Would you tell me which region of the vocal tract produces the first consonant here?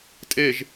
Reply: tongue tip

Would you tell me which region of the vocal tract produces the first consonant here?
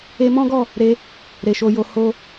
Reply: lips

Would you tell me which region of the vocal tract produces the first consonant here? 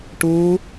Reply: retroflex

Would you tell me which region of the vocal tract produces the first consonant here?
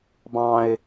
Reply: lips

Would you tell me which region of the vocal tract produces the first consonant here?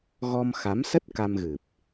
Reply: velum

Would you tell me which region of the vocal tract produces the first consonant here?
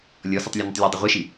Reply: tongue tip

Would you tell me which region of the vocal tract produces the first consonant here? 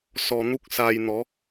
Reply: tongue tip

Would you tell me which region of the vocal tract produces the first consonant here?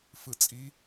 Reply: lips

